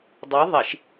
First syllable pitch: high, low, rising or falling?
rising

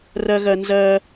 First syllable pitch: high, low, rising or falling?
high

